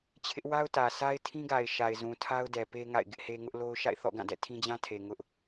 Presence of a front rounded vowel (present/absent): absent